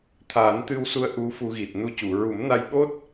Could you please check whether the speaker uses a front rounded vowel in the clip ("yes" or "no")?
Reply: no